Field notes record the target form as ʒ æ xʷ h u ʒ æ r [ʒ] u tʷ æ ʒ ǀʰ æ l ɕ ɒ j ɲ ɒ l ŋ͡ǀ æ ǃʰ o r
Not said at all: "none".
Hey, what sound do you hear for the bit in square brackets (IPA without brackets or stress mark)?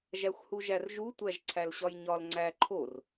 ʒ